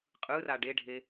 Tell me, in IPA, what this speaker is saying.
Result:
qʼ ɯ r a ɖ e ɖʱ e

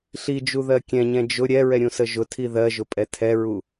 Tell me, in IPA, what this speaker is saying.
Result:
ɬ i d͡ʒ u ð ɜ kʲ ɛ̃ ɲ ɛ̃ d͡ʒ ʊ ɾʲ ɛ ɹ ɛ ɾʲ ũ s ə ʒ ʊ tʰ i ð ɜ ʒ ʊ pʼ ɛ tʰ ɛ ɹ u

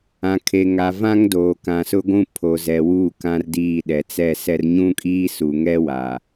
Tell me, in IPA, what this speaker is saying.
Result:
ã˨ kʰ e˨ ŋ a˨ v ã˦ ŋ d oː˨ k ã˨ s ʊ˦ ɡʷ ũ˦ pʰ o˨ z ɛ˨ w uː˦˨ k ã˦ r d iː˦˨ ɗ ɛ˨ t͡s ɛ˦˨ s ɛ˦ r ɲ ũ˦ kʼ iː˦ s u˨ ŋ ɛ˦ w a˨

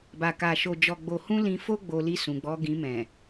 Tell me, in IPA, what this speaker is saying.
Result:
b a˨ k a˨ ʃ o˨ d͡ʒ ɔ˨ ɡ͡b o˨ h ũ˧ l ĩ˧ f o˦ ɡ͡b o˧ l i˧ s ũ˨ ɡ͡b ɔ˧ ɡ ĩ˧ m ɛ̃˨

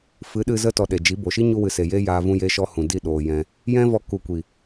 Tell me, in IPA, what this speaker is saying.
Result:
f ɨ˨˦ ɗ ɨ˧ z ə˧ t ɔ˨ ɗ e˨ d͡ʒ i˨˦ b o˨ ʃ i˦ ɲ u˧ w ɨ˨ s e˨ j e˦ j aː˧ v ũ˧ j e˧ ʃ ɔ˧ h ũ˨ d i˦˨ ɗ oː˨ j ɛ̃˧ | j ɛ̃˦ v ɔ˧ k u˨ kʷ i˨

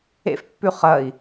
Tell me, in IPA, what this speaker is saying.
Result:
ḛ f pː ʉ χ ɐ i̯

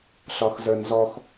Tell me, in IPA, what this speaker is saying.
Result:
ɬ ɒ x z ə˞ n z ɔ x

